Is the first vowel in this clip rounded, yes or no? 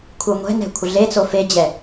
no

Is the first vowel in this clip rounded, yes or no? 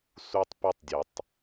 yes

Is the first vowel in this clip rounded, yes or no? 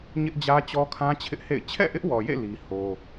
no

